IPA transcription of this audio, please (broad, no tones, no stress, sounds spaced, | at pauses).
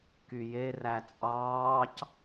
k y j e r æ t͡sʼ ɑː c